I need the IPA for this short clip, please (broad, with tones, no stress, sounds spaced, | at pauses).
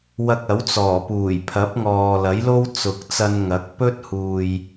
w ɐ˧ k̚ ɐ˨˥ w t͡s ɔː˨˩ p uː˨˩ j pʰ ɐ˨˥ p̚ ŋ ɔː˨ l ɐ˨˥ j l o˥ w t͡s ʊ˨ k̚ t͡s ɐ˧ n ŋ ɐ˨˥ k̚ p ɵ˥ t̚ h uː˨ j